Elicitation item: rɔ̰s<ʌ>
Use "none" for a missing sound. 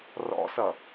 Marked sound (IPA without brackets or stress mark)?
ʌ